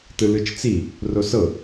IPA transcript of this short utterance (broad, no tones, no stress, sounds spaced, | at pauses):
t ɯ l ɯ t͡ʃ t͡s i | r o s ɤ